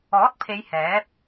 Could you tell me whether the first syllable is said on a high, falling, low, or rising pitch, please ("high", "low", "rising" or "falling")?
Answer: rising